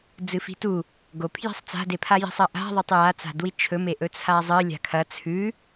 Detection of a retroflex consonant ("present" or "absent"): absent